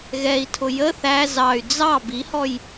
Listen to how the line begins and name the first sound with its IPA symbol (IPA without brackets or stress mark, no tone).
ɣ